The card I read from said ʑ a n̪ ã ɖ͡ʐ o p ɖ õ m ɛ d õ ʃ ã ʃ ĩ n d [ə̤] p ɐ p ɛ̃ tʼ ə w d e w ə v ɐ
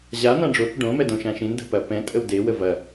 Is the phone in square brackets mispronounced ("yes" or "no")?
no